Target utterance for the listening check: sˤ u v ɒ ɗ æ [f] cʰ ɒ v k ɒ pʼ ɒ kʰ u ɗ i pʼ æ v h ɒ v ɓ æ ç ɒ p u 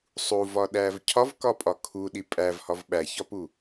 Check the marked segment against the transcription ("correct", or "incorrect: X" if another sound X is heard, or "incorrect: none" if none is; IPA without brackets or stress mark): incorrect: v